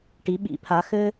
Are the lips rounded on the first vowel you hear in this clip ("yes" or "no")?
no